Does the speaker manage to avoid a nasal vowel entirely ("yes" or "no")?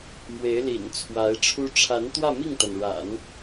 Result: yes